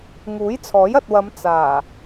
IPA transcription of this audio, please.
ŋ uː˨˥ j t͡sʰ ɔː˨˥ j ɐ˨ t̚ w ɐ˨˧ m t͡s aː˨˩

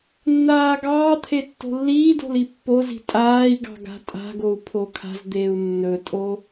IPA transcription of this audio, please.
nː aː ɡ ɑː t̪ʰ e tː o̤ lː iː d o̤ l i pː o z i̤ tʼ aː i̯ ɡ ɑ̤ ɡ a̤ tʼ a̤ ɡ o u̯ pʰ o kʰ a̤ z d̪ eː u̯ nː ɵ tʼ o

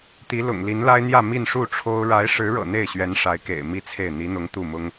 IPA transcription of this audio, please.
t̪ i˧˥ l ʊ̰˨˩ ŋ l i˧˥ n l a˥ ɪ̯ n̪ j ä˥˧ m i˥˧ n ʂ u˥˩ ʈ͡ʂʰ o˥ ʊ̯ ɻ a˧˥ ɪ̯ ʂ ɻ̩˧˥ ɻ ɤ̰˨˩ n̪ e˥˩ ɪ̯ ɕ ɥ ɛ˧˥ n ʂ a˧˥ ɪ̯ k ḛ˨˩ ɪ̯ m i˥˧ t͡sʰ e˥˩ ɪ̯ n̪ i˧˥ n̪ ʊ˧˥ ŋ t̪ u˥˩ m ʊ˥ ŋ

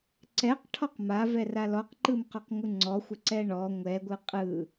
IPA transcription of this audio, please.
ǀ ɛ q ʈʰ ɔ q m a v ɛ r a l ɔ q ǃ ɯ m q ɔ q ŋʷ ɯ ŋ͡ǀ ɔ xʷ ə ǀ ɛ ɳ ɔ ŋʷ ɛ ɡʷ ɯ qʼ ɯ

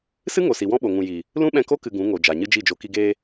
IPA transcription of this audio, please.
s ɨ˦ ŋ o˨ s i˨ w ɔ̃˦ ɓ o˨ ŋ ũ˨ j i˨ | l ũ˦ ɓ ɛ̃˧ k o˦ k ɨ˧ ɡ ũ˨˦ ŋ o˨ d͡ʒ a˨ ɲ ɨ˦ d͡ʒ i˦˨ d͡ʒ o˧ k i˧ ɡ eː˧

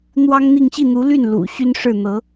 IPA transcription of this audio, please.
n̪ w ɑ˥ ŋ n̪ i˥˧ ŋ ɕ i˥˩ n̪ u˧˥ l y˥˩ n l ṵ˨˩ ɕ y˥ n ʂ ɻ̩˥˩ n̪ ɤ˧˥

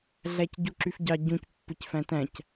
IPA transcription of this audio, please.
ɮ æ c ɟ u ǁ y f ɟ ɑ ɟ ũ c pː ɯ c f æ̃ t æ̃ c

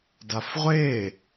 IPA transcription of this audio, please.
d a f ʁʷ eː

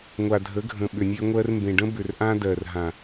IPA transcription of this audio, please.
ŋʷ a˨ dʱ ə˨˦ ɡʱ ə̃˨ ɓ ʏ˨ nʲ e˦ ŋʷ ɜ˧ r m b ẽ˨ ɖ ə̃˦ b ʏ˨ r ʔ ã˦ d ɜ˨ r ɦ ã˨

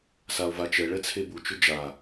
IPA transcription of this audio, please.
s a o̯ v a t͡ʃ ɛ ɭ ɛ t͡sʰ e b u t͡ʃ ʊ d͡ʒ a

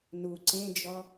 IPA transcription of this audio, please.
n u ǀ ẽ d͡ʒ ɔ

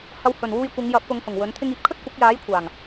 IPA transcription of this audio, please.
h ɐ˧ w h ɵ˨˩ n w uː˧ j kʷ ɪ˨˧ ŋ j ɐ˨˥ p̚ k ʊ˨˧ ŋ h ʊ˨˩ ŋ w ɵ˨˥ n t̪ʰ ɪ˥ ŋ iː˨ p̚ kʰ ɵ˥ t̚ kʷ ɐ˨˥ k̚ j aː˨˥ j kʷʰ aː˨˩ ŋ

